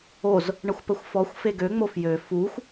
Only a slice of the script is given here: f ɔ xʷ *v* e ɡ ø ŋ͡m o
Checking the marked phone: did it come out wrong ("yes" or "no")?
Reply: yes